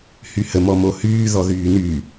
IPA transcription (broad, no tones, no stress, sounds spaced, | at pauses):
h y h ə m ɔ m o h yː ð ɔ ð yː n y